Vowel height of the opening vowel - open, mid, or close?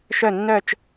mid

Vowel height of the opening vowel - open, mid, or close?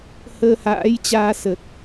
mid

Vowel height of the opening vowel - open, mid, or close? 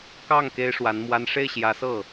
open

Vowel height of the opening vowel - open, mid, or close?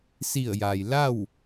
close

